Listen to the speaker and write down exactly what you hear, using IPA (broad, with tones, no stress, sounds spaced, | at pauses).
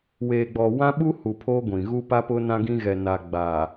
w eː˨ ɡ͡b ɔ˨ w ã˦ ɓ u˦ h u˨ pʰ oː˦ ɡʷ ĩ˨ ɣ u˦ p a˦ p ʊ˦ n ã˦ ɡ ĩ˦ ɣ ɛ˨ n a˨ ɡ͡b aː˨